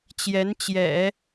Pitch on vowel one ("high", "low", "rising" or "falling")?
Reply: rising